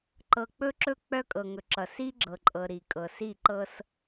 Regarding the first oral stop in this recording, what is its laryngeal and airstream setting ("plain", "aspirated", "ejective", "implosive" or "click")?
click